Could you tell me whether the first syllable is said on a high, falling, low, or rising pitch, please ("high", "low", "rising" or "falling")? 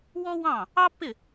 high